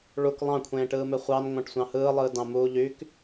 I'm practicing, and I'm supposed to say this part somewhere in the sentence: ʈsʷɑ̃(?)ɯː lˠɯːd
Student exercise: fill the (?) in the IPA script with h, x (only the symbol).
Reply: h